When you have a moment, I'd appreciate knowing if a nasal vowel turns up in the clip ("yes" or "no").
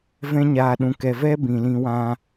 yes